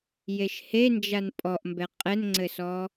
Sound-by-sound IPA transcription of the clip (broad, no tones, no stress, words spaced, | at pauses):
jeʃhend͡ʒan pʼɔʔmbɛ qʼɛnŋ͡ǀɘsɔ